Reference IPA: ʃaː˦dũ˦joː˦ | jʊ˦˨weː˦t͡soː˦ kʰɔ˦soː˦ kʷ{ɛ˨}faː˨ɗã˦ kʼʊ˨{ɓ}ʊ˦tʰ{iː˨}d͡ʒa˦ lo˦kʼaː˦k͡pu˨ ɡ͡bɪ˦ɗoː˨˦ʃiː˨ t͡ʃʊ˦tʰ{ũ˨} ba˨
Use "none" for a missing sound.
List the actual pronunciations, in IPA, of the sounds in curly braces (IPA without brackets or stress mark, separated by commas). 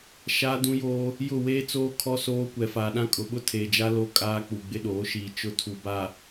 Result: ɛ˨, ɓ, eː˨, u˨